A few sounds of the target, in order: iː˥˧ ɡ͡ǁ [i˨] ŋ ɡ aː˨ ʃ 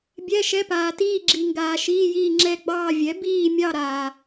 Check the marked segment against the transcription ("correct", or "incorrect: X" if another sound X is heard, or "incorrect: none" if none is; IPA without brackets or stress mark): correct